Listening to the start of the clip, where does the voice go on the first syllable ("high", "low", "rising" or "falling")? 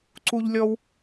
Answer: high